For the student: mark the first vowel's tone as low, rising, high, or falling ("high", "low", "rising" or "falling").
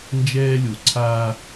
high